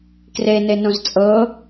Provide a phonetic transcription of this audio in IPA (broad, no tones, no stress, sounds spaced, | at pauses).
k r e n e n õ z t͡sʼ ɤ